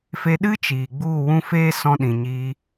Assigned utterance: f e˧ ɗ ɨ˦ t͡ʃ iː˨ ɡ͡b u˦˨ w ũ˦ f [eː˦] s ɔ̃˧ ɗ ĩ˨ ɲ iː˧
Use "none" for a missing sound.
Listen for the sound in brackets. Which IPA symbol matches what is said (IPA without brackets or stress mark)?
eː˦